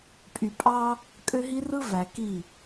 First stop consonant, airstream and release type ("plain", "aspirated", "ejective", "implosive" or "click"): ejective